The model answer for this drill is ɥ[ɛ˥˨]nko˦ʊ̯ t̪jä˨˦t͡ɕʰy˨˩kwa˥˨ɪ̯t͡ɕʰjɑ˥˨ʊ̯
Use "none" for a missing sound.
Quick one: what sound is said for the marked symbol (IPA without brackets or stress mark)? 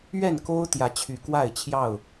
ɛ˥˨